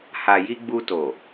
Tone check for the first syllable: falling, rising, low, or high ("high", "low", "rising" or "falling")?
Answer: low